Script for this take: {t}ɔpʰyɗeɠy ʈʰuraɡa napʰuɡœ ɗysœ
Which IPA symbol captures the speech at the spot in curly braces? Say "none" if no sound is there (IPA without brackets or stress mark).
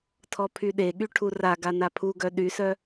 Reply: tʰ